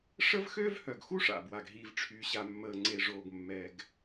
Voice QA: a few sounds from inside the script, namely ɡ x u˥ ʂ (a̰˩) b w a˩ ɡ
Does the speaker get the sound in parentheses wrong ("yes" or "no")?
no